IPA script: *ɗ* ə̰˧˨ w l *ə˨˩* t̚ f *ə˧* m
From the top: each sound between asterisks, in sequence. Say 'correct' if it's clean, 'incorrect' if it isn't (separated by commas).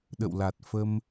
correct, incorrect, correct